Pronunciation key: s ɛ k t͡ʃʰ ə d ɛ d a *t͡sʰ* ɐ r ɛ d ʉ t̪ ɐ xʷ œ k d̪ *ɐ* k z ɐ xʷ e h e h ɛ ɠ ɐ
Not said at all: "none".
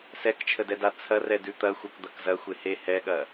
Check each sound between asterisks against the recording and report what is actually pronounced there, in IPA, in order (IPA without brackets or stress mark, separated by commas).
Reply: t͡sʰ, ɐ